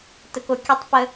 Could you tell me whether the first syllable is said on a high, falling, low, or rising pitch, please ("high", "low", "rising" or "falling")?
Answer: low